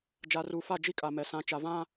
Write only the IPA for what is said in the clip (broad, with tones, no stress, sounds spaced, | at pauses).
d͡ʒ a˨ r uː˨ f a˦˨ d͡ʒ i˦ kʼ a˨ m ɛ˨ s ã˨ t͡ʃ a˨ v ã˦